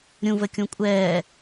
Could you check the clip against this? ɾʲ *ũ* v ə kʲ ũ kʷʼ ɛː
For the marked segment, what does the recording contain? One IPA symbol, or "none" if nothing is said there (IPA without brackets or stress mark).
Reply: ũ